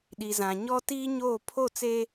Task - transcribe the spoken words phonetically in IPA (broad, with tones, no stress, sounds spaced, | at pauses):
ɗ i˨ z ã˨ ɲ ɔ˦ t iː˦ ɲ oː˦˨ pʰ o˦˨ t͡s e˦